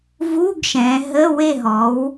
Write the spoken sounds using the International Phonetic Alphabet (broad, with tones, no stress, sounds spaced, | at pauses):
v u˧˥˧ ɡ ʃ ɛ̃˩˧ ɦ ə˧˥˧ w e˥˨ ɦ ɔ˩˥ w